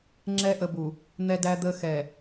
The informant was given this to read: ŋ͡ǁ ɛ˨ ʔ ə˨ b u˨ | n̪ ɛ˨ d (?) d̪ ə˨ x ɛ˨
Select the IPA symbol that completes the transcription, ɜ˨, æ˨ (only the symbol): æ˨